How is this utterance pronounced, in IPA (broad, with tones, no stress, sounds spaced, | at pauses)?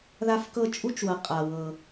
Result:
ð a˧ f k ɤ˧ t͡ʃʼ u˧˥ t͡ʃ w ɤ˩ qʼ a˩ w ɤ˩